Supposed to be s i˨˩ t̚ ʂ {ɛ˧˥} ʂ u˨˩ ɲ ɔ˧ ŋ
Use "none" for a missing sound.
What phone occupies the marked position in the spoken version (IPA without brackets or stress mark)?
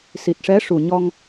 ɛ˧˥